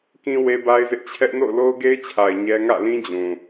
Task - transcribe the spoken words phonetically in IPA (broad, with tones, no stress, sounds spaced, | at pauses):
k ĩ˦ w e˦ b a˦ ɪ̯ z ɪ˦ ʔ t͡ɕʰ ɛ˦ ʔ n o̰˦˨ ʊ̯ l o˦ ʊ̯ ɡ e˦ ɪ̯ t͡ɕʰ a˨ ɪ̯ ɲ ɛ˦ ŋ ä̰˦˨ l ĩ˦ d͡ʑ ũ˨